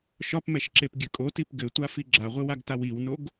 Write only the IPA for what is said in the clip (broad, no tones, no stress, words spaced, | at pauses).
ʃɒpmɛʃǁepɡʲɘ kʼotip ɡɘtʷafi ɡ͡ǁaʁʷɨwaɡtaw iwnoɡ